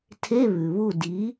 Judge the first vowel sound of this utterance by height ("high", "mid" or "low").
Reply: mid